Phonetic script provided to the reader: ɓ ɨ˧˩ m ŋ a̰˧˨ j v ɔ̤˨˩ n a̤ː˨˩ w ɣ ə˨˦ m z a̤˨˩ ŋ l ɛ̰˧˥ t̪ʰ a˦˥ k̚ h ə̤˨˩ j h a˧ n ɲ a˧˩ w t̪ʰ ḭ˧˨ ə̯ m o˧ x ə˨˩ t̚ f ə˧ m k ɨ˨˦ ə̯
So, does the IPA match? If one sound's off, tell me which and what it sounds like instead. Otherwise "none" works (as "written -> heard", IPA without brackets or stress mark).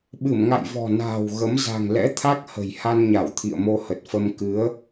x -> h